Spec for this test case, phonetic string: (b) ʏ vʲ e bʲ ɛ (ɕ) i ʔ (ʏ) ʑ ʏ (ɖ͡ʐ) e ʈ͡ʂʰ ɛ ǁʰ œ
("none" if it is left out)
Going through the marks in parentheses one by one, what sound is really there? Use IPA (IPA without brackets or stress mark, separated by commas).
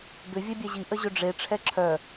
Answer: b, ʑ, ə, ɖ͡ʐ